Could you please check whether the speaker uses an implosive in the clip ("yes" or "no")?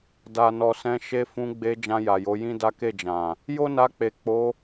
no